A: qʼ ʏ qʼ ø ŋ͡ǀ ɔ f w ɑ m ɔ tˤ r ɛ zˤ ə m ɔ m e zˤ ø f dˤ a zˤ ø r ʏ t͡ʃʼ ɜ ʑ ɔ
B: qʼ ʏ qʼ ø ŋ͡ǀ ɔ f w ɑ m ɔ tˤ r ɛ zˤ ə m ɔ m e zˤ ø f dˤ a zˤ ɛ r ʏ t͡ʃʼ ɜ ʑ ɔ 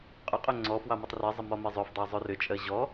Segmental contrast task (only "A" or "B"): A